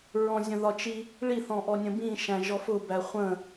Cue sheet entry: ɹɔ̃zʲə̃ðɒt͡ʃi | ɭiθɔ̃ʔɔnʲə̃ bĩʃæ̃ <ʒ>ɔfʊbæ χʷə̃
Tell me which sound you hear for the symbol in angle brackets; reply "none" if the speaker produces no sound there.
ʒ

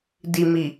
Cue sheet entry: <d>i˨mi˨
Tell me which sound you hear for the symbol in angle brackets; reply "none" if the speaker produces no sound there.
d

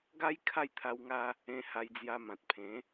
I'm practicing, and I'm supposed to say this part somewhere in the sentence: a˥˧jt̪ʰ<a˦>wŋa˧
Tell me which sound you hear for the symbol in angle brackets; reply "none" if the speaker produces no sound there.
a˧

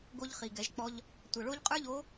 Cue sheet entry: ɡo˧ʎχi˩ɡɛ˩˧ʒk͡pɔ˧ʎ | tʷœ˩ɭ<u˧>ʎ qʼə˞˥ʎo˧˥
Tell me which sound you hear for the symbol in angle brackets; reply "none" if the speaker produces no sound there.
o˧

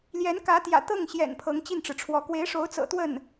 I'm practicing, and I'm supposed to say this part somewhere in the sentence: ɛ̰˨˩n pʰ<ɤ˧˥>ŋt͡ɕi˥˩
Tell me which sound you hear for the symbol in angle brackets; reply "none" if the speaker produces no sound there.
ɤ˧˥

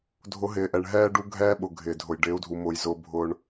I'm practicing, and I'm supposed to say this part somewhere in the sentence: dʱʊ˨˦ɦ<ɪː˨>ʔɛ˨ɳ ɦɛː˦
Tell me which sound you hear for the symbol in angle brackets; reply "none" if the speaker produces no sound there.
ɪː˨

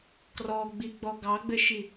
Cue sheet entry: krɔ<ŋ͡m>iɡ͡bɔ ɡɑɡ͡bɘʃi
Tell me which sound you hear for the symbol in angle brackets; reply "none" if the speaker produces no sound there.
ɡ͡b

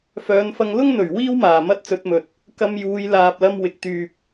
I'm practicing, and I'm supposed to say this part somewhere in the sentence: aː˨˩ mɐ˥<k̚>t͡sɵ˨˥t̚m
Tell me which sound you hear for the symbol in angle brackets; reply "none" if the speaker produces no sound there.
t̚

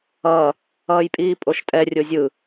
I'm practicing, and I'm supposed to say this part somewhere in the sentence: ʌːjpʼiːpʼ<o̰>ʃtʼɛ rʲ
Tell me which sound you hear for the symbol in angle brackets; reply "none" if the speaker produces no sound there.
o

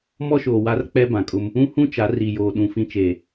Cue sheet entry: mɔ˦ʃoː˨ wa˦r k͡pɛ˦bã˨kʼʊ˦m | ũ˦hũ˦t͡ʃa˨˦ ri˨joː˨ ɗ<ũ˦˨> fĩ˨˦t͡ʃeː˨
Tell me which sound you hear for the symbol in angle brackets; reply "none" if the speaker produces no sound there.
ũ˨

